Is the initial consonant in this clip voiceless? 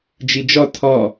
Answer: no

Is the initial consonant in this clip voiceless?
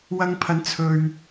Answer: no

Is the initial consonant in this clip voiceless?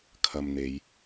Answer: yes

